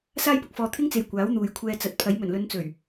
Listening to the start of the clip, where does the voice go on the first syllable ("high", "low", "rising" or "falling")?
high